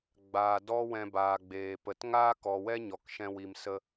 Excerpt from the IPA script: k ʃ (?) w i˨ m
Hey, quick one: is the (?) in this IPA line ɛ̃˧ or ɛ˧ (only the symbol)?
ɛ̃˧